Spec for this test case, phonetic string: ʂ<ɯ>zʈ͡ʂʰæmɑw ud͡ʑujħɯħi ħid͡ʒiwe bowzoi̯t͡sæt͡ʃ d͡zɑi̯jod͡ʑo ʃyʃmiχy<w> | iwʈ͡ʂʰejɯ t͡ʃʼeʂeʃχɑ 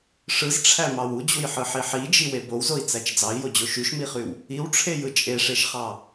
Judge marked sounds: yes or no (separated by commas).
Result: yes, yes